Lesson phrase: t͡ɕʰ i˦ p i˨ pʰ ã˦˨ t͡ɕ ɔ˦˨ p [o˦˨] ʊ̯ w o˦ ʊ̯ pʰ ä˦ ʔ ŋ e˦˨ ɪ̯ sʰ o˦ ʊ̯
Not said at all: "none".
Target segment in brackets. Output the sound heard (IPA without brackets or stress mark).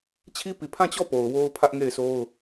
o˨